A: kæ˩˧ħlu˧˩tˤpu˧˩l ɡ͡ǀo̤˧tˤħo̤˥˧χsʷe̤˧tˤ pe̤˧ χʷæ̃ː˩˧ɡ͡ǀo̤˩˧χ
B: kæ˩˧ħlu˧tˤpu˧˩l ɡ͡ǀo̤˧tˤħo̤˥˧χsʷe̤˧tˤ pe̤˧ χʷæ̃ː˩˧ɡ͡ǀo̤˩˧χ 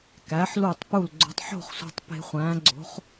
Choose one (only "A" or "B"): A